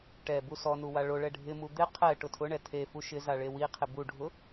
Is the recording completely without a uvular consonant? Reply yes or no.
no